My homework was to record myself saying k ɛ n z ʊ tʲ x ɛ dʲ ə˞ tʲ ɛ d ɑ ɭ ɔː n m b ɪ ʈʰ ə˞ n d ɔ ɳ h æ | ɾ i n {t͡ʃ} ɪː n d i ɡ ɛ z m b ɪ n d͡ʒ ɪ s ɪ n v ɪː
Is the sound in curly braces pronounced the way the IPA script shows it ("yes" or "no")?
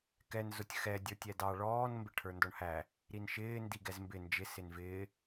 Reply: no